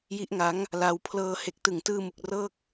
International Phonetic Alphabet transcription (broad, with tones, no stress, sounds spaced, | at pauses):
j i˦˥ ʔ ŋ a˦˥ ŋ | l a˧ w pʰ l ɤː˧ h e˨˩ k̚ t ɯ˨˩ ŋ t ɯː˧ m u˨˩ k̚ r ɤː˥˩ k̚